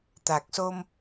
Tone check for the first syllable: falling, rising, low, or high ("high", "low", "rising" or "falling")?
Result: low